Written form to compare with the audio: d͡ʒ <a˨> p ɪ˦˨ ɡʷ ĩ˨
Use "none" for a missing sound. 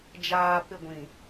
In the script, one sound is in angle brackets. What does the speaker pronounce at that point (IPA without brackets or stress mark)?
aː˨